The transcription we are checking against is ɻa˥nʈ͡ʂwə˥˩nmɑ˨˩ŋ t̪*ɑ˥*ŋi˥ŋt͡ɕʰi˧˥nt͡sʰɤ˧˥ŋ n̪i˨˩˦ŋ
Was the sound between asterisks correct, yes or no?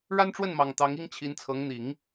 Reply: no